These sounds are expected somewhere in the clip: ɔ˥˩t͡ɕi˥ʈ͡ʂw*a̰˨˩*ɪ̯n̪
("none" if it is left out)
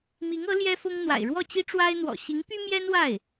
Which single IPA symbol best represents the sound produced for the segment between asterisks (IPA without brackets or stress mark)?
a˥